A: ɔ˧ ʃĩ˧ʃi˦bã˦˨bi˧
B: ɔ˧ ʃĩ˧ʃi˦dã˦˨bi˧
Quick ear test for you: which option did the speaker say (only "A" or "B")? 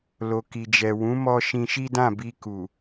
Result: B